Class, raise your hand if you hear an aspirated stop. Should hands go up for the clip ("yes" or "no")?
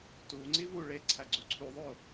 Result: yes